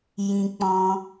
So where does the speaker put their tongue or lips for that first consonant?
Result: palate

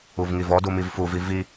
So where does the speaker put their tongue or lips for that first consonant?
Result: lips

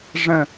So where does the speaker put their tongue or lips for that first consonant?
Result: retroflex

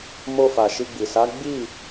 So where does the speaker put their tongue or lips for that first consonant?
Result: lips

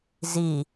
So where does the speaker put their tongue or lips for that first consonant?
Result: tongue tip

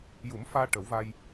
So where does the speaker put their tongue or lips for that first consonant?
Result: palate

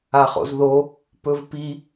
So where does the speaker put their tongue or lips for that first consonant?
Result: uvula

